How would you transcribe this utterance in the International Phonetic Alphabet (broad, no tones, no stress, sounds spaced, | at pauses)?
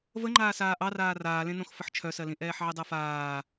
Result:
v ə ŋ͡ǃ aː s aː ʔ ɑ r aː r aː l ẽ n õ x f ə ħ t͡ʃʰ œ s ɜ l ĩ ʔ ɛː ħ ʕ i dˤ ɜ f aː